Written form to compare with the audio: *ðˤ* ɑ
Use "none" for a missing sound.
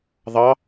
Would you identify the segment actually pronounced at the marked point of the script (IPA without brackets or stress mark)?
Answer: ðˤ